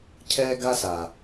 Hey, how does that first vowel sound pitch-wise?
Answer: high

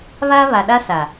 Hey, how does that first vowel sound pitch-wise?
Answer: high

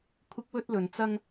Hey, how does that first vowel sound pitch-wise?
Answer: high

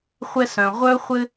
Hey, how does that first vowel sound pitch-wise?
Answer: high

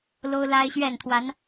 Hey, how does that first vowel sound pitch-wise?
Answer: high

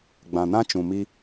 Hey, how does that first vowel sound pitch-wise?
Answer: low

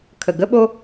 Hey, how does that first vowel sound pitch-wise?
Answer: low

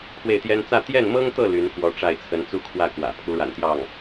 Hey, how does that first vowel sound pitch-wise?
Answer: falling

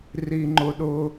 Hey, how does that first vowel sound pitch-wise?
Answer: low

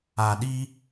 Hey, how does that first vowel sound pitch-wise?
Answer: low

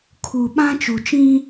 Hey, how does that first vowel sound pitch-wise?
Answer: low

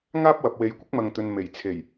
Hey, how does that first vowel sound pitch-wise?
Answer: high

